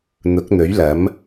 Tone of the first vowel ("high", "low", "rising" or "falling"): rising